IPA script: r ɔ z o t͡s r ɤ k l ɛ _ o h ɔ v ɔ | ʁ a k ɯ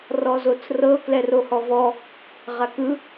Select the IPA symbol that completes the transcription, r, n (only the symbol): r